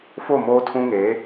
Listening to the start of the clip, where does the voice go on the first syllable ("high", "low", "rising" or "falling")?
falling